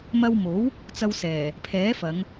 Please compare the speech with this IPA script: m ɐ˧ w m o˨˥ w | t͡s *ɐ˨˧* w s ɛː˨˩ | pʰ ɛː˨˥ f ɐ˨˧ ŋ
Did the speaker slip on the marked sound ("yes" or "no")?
yes